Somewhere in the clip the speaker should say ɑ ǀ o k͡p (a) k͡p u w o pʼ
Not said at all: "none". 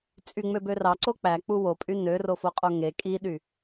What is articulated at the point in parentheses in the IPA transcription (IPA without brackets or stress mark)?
æ